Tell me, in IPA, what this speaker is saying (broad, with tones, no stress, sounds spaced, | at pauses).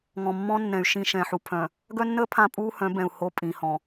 ŋ ɔ̃˨ mː ɔ̃˦ nː ɛ̃˨ y̯ ʃ ĩ˦˨ ʃ ɛ̃˨ ħ u˨ pʰ œ̃˨ | ɡ œ˦ nː əː˦ pʰ ã˦ pʼ uː˦ h œ̃˨˦ b ɛ̃˨ u̯ h o˦ pʼ ĩ˨ h ɔ̃˨